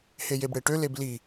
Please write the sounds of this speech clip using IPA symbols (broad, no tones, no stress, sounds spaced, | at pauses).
h e j e b ɽ e ʈ ø l e b l i